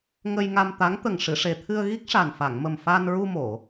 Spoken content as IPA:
ŋ ə˧ j ŋ a˧ m t̪ a˧˥ ŋ t̪ ə˨˩ ŋ ʂ ɨ˨˩˨ ʂ e˨˩ t̪ʰ ɨ˧ ə̯ ɣ i˦˥ k̚ ʂ a˨˩ n f a˨˩˨ ŋ m ə˨˩ m f a˧ n ɹ u˧ m o˨˩˨

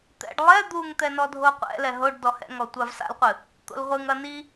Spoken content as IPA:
t̪ ɛ̰ ɖ lˠ ɛ d̪ u ŋ t̪ ɛ n ɔ dʱ o qʷ ɛ̰ l ɛ ɦ o ɖ d ɔ h ɛ̰ ŋ ɔ tʷ a v s a̰ l qʷ ɨ | t̪ o̰ l ʁʷ ɨ ŋ ɐ n i

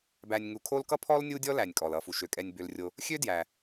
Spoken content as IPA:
b æ˨ nʲ ŋ u˨ kʰ o˦ l k ʌ˥ pʰ ɔ˥ l nʲ u˦ dʲ ɔ˦ l æ˩ nʲ kʼ ɔ˩ l ʌ˨ f u˩ ʃ ø˩ kʼ ɛ˨ nʲ b ø˨ l rʲ o˨ | xʲ ø˥ d j æ˩

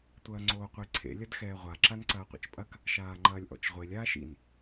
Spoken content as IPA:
tʷ ɐː ŋ͡ǀ oː qʷ i ǀʰ ḛ lʲ ɐ d x ɛː ʁʷ a ǁ a n ǀ ɐː qʷ ḭ t͡ʃ pʼ ɐ k | ʃ aː ŋ͡ǃ ɐː lʲ ʔ ɔ̰ t͡ʃ ʁʷ e lʲ aː ʃ ḭ n

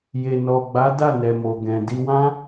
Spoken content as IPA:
j e˨ n ɔ˨ ɡ͡b a˨˦ d a˦˨ n ɛ˨ m o˨ ɡ ɛ̃˨ d i˧ w ã˦

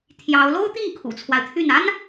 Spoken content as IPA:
t̪ʰ j ɑ˧˥ ʊ̯ l o˥ ʊ̯ t̪ i˥˩ ŋ kʰ ṵ˨˩ t͡sʰ w a˦ ɪ̯ t̪ʰ y˥˩ n a˥ n

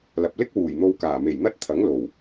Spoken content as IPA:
l ɐ˨ p̚ l ɪ˥ k̚ w uː˨˩ j n̪ o˧ w k aː˨˩ m e˨˩ j n̪ ɐ˥ t̚ t̪ʰ ɐ˨˥ ŋ l o˨˩ w

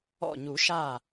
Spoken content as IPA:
ɔ̰˧˩ ɲ u˨˩˦ ʃ aː˧˩

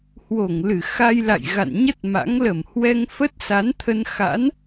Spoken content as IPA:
h w o˧˩ ŋ l ɨ˧˩ x a˧ j l a̰˧˨ j ɣ a̰˧˨ n ɲ ə˦˥ t̚ m a̰˧˥ ŋ l ə˧˩ m h w ɛ˧ ŋ f ə˦˥ t̚ s a˨˦ n t̪ʰ ə˧ n x a̰˧˥ n

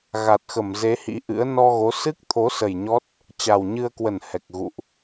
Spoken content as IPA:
ɣ a˨˩ t̚ x ə˧˩ m z e˨˦ h ḭ˧˥ ʔ ɨ̰˧˥ ə̯ n ɔ˧ ɣ o˨˦ s ɨ˦˥ k̚ t̪ʰ o˨˦ s ə˨˩ j ɲ ɔ˦˥ t̚ | t͡ɕ a˨˩ w ɲ ɨ˧ ə̯ k w ə˧˩ n h ɛ˨˩ k̚ ɣ ṵ˧˨ ʔ

